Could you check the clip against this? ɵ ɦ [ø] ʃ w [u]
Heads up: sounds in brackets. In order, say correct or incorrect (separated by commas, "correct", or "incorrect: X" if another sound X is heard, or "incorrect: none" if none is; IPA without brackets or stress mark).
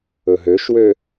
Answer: correct, incorrect: ø